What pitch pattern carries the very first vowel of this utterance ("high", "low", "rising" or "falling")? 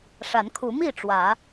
rising